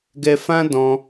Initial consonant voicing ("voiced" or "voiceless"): voiced